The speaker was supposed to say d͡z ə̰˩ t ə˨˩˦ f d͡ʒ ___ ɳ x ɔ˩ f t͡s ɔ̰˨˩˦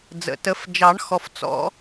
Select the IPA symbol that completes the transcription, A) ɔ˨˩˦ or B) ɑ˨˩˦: B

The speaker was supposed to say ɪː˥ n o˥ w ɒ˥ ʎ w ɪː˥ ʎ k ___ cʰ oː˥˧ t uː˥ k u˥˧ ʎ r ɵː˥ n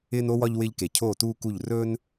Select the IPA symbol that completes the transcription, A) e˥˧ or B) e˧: B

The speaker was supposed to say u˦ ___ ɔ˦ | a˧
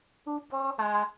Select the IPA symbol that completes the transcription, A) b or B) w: A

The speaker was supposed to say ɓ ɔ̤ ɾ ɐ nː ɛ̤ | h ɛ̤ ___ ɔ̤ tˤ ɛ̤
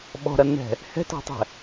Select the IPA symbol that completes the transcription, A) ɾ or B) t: B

